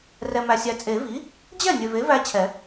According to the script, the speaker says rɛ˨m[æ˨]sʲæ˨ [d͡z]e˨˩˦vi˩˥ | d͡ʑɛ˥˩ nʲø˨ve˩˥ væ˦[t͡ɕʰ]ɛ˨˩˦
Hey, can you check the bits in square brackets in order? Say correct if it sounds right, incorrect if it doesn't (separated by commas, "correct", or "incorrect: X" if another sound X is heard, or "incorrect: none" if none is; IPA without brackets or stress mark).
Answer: correct, incorrect: t͡sʼ, correct